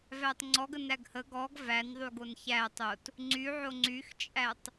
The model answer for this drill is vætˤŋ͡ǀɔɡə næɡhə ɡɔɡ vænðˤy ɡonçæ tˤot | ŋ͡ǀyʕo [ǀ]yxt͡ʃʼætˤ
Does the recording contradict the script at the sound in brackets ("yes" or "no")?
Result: yes